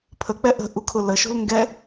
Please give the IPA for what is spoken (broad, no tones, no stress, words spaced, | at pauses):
pʰək͡pɛ ʔə̤ ʔukʰʊləʃo̤l ŋɡɛ